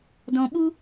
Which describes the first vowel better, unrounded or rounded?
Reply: rounded